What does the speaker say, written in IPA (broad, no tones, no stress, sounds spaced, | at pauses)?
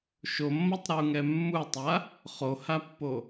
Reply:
ʃ o mː ʌ tˤ ɾ o u̯ ŋ ɛ mː u tˤ a | χ o h a pː o